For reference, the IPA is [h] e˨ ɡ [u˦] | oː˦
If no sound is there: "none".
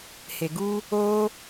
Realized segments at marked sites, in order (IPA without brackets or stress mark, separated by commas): h, u˦